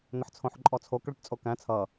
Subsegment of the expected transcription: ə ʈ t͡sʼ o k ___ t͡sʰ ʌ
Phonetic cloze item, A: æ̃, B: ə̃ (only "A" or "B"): A